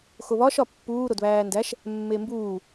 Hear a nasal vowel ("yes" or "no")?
no